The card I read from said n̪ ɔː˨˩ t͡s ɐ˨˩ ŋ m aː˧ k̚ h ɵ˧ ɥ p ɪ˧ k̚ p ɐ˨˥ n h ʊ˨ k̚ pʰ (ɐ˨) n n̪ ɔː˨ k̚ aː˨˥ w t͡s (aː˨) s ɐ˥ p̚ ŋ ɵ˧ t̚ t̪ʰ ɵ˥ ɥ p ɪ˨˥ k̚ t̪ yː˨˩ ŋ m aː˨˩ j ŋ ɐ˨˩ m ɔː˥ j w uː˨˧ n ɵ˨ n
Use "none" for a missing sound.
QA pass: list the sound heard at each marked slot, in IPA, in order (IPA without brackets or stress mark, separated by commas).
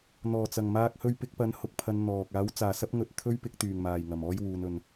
ɐ˨˧, aː˨